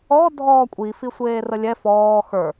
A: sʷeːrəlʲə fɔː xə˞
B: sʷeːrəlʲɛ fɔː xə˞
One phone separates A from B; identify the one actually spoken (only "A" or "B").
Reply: B